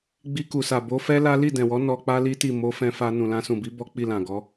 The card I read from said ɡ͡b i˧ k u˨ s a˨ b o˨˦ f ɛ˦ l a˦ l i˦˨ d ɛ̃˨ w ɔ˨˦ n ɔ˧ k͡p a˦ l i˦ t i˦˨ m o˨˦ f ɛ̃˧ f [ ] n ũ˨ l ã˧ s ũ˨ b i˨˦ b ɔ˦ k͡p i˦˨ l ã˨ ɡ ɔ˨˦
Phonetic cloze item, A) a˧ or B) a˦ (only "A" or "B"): A